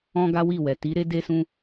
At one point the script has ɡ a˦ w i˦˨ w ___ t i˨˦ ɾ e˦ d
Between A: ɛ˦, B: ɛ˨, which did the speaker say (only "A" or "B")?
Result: B